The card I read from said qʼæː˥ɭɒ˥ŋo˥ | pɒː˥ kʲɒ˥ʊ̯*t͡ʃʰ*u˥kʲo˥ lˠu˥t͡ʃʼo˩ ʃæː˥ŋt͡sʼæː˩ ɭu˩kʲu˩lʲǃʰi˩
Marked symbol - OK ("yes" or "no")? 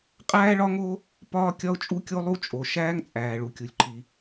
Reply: no